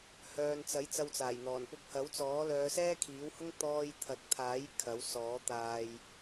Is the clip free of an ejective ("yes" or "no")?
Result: yes